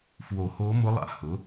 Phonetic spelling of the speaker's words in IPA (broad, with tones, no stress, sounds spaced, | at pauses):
f w o˨˩˦ h o˧˥ m ʊ˧˥ lˠ a̰˨ h ʊ˩˥